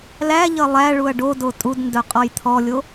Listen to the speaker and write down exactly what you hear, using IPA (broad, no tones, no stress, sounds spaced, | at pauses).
l æ ʎ ʌ lˠ æ ɭ u ɐ̯ ɖ o d o tʼ u d n d œ qʼ ɔ j t̪ʰ ɔ lʲ o